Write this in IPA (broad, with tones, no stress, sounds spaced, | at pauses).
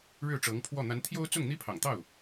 ɻ ɻ̩˥˩ ʈ͡ʂ ɤ˧˥ ŋ pʰ w ɔ˥˩ n̪ a˧˥ n t̪ʰ j o˥ ʊ̯ t͡s ʊ˥˩ ŋ n̪ i˥ pʰ ɑ̰˨˩ ŋ t̪ ɑ˥˩ ʊ̯